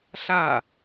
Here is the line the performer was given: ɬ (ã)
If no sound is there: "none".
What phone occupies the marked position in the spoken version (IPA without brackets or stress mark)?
a